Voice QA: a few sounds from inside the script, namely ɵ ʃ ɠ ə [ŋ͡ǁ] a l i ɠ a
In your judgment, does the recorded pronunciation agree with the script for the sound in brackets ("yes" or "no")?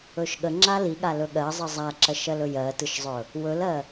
yes